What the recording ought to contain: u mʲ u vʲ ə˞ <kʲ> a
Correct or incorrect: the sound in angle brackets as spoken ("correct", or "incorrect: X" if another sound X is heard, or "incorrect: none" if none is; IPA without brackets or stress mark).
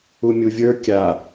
correct